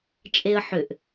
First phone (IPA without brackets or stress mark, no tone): t͡ʃʼ